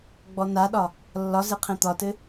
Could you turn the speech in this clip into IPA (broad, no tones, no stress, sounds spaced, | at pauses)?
ɡ͡b ɔ n a ɗ ɒ | lː ɒ z e qʰ ẽ t̪ ɒ t ɘ